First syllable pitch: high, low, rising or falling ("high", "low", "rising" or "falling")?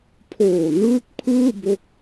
low